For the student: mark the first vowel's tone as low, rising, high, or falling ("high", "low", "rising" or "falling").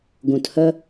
low